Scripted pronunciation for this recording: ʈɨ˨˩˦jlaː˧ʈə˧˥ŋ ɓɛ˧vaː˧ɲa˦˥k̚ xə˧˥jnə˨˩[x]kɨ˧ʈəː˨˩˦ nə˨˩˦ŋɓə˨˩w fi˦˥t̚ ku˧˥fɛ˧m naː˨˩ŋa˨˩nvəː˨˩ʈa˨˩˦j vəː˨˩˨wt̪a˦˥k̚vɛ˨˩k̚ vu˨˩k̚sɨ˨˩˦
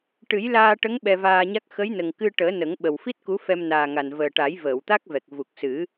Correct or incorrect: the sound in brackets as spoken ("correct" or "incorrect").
incorrect